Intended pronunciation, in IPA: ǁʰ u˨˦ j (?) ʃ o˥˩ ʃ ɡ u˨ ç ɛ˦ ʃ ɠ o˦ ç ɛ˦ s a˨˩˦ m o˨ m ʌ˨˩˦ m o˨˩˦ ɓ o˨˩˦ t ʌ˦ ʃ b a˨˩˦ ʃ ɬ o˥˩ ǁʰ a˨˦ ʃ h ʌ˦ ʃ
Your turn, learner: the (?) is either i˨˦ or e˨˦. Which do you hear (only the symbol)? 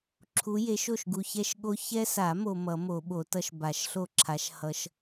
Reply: e˨˦